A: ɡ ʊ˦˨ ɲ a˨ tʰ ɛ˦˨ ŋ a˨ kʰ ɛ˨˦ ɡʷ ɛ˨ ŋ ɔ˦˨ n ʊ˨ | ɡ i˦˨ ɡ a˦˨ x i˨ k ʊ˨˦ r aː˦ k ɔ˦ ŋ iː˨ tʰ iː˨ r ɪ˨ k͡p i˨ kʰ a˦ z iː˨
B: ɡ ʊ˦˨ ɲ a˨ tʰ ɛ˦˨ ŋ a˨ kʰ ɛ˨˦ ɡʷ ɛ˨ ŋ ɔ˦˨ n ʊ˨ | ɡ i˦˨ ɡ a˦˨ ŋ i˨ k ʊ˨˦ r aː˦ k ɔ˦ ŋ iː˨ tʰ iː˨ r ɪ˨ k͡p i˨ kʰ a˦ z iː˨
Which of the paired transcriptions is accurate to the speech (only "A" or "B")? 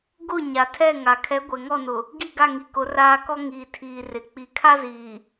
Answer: B